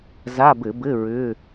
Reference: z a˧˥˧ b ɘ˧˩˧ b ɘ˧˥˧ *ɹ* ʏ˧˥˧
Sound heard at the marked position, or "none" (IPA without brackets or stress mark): ɹ